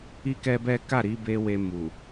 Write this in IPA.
i˦kɛ˦bɛ˦ ka˦˨ɾi˨˦be˧ we˧mu˨

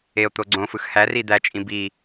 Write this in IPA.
eo̯ t̪oɡ͡ǀõfɯx hæ rid̪æt͡ʃʼĩ bi

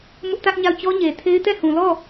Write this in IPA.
mʊ˦ʔtä˦ʔɲa˦˨ʊ̯ t͡ɕɔ˦ɲe˨tʰe˦ɪ̯ tɛ˦˨hũ˨lɔ˦˨

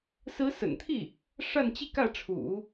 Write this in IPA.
sɹ̩˧˥sə̰˨˩nt̪ʰi˥˩ | ʂa˥˧nt͡ɕi˥˧kä˥˩ʈ͡ʂʰṵ˨˩˦

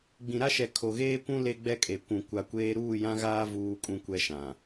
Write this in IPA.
ɡ͡bĩ˨ɾa˦ʃɛ˨ kʰo˨ɣeː˦kʷũ˦ le˦ɡ͡bɛ˦kʼe˨ kʷũ˨ kʷa˨kʷeː˦ ɾuː˦˨jã˦ɣaː˦ vuː˦kʼũ˦kʷɛ˦ʃã˨

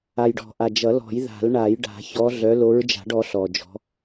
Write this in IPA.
a˨˩jɖɔ̤˨˩˦ʔa˨˩ d͡ʒʌ˨˩˦ lɔ̤˨˩˦jða̤˨˩˦lɳa˨˩˦jɖa̤˨˩˦ çɔ˨˦ɮœ˨˦ lo˨˦ɹd͡ʒa̤˨˩˦ɖ ɔ˨˦ɬɔ˨˩d͡ʒɔ̤˨˦

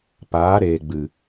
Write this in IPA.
paː˨˦ɾeː˨ɡ͡bɨ˨

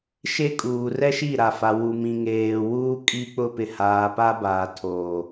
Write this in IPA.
ʃe˦kʼuː˨ rɛ˦ʃi˦˨ɾa˨fa˨ wu˨mĩ˨ŋeː˨wuː˦ kʼi˦k͡pʊ˦ pɪ˨ haː˨pa˦baː˨ tʰoː˨

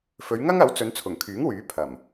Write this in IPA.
fɵ˨˧ɥŋɐ˥ŋɐ˨˥wt͡sɵ˨˧n t͡sʰʊ˨˩ŋkʰyː˨˥ŋ wyː˨˥ pʰɐ˨˩m

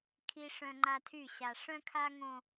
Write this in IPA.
kʰi˦ʂœ̃˦ŋ͡ǃa˦tʰy˦˨ ɕa˨ʂœ̃˦kʰa˦ŋõ˦

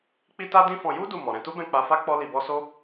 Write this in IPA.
k͡pi˦ta˦dĩ˦fɔ̃˧ ju˦ du˦˨mɔ˨ ɾɛ̃˧tu˦bɛ̃˦˨ k͡pa˧fa˦ k͡pɔ˦li˧bɔ˦ so˦

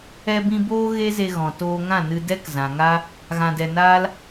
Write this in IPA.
ɛ˧bĩ˧ boː˦ ɣe˦ze˧ɣɔ̃˨ toː˧ŋã˦˨nɨ˧ dɛ˦kzã˨ŋa˦ | ɣã˧dɛ˧ naː˦l

